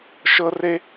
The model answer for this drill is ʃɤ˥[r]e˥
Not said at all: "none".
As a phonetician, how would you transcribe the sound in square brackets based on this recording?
r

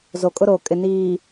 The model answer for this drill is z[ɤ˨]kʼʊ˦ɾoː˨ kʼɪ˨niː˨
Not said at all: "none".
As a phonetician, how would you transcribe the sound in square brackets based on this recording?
o˨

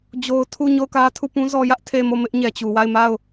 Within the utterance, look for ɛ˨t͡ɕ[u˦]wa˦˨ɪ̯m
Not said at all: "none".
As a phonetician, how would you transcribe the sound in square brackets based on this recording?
u˨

